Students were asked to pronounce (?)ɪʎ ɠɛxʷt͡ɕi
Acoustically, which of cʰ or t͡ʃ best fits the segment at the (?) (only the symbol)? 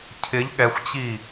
cʰ